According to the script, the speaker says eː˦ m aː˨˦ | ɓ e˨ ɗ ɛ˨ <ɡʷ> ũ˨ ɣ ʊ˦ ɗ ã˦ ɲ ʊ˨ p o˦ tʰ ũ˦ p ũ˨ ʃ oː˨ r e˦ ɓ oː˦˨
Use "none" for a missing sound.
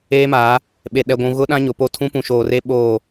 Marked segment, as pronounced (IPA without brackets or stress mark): ɡʷ